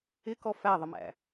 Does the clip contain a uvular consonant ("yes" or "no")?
no